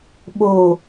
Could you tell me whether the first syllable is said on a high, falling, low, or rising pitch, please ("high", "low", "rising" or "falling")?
low